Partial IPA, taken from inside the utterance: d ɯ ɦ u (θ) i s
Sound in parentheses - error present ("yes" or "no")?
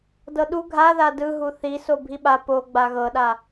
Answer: no